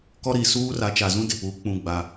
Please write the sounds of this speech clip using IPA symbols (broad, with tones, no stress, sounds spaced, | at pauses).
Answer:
k ɔ˦ ɾ i˦˨ s uː˦ r a˨˦ t͡ʃ a˨ z ũ˦ d ɪ˨ p uː˨˦ k͡p ũ˦ ɡ͡b a˦